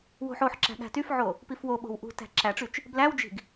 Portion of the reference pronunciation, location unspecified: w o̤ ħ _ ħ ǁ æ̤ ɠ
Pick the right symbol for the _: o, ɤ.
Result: o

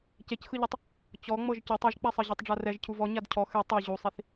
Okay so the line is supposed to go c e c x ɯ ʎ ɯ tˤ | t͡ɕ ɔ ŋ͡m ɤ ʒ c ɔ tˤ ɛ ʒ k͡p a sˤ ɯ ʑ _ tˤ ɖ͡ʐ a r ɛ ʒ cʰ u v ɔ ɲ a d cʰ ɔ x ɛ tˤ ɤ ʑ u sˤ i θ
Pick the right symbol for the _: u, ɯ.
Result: u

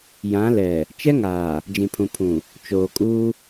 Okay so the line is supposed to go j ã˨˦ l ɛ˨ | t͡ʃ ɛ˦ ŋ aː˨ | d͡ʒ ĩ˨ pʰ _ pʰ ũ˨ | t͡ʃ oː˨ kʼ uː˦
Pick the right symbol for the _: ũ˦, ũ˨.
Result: ũ˨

